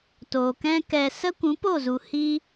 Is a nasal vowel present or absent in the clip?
present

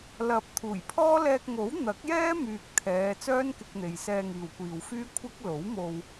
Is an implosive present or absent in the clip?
absent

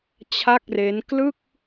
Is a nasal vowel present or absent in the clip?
absent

